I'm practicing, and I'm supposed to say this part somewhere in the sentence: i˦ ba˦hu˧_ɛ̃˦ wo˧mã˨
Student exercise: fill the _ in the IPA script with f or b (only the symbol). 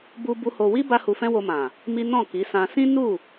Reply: f